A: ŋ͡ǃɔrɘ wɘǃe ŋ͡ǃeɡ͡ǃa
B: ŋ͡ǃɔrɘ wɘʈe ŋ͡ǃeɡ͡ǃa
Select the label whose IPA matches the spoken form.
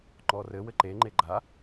A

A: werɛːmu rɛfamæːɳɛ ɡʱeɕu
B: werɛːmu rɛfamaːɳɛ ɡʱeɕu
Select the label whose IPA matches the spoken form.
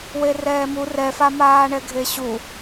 B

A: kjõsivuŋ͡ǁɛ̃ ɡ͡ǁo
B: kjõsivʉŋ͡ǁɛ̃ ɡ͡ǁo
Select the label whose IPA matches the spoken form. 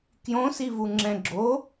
A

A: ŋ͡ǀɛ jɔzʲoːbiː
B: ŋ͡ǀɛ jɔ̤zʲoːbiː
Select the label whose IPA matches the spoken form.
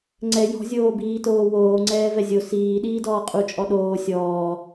B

